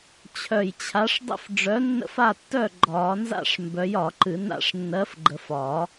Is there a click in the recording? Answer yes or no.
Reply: yes